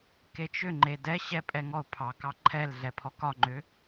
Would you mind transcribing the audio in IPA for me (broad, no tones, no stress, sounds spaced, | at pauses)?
k e t͡ʃ ʏ ŋ͡ǃ e d ɛ ɕ ɛ pʼ ɛ ŋ ɔ ʊ̯ pʰ ɑ k ɑ ǃʰ ɛ l ɮ ɛ pʰ ɔ k ɒ ŋ͡ǃ ʏ